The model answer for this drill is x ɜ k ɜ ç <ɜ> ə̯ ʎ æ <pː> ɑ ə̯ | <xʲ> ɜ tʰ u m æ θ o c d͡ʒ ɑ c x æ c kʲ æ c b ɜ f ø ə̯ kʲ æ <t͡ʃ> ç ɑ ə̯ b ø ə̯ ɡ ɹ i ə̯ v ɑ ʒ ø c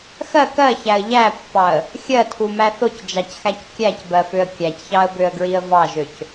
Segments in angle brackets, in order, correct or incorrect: incorrect: æ, correct, correct, incorrect: c

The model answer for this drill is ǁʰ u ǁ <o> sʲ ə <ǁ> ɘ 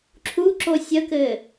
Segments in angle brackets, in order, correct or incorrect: correct, incorrect: k

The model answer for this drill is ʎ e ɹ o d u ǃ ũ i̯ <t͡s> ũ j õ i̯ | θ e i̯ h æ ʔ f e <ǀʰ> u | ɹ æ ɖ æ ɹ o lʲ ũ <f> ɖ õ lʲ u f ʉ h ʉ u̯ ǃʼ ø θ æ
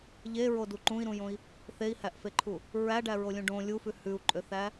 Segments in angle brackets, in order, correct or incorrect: incorrect: ɾ, incorrect: ǃʰ, incorrect: none

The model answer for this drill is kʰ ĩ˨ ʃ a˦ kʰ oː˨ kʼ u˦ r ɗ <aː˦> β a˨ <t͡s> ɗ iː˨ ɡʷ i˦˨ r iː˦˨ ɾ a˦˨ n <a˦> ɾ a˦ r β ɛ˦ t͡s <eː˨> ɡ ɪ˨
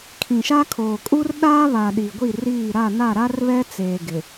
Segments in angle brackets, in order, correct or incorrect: correct, incorrect: none, incorrect: a˦˨, correct

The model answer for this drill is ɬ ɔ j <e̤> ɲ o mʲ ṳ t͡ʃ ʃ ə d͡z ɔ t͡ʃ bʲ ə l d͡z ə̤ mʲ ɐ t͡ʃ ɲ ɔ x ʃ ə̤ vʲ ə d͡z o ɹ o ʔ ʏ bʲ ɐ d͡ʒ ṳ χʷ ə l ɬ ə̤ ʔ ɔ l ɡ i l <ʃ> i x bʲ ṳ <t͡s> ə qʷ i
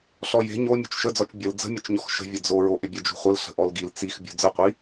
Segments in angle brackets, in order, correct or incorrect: correct, incorrect: t͡s, incorrect: d͡z

